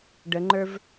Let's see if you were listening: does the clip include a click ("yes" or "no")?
yes